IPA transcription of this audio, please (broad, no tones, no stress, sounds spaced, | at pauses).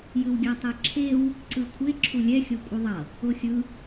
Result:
j ɯ w ɡʲ a tˤ ɛ ǁʰ e w | ǀ ɯ kʷʰ e ǁʰ u lʲ ɛ xʲ o kʷʼ ɯ ðˤ ʌ | o xʲ ɯ